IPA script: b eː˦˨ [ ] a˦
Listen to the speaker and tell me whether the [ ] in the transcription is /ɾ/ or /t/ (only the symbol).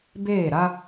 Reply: ɾ